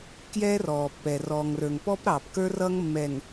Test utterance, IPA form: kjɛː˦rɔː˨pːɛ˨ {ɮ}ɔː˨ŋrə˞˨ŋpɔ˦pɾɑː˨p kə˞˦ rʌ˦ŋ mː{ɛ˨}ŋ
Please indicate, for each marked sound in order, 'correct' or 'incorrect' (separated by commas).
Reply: incorrect, correct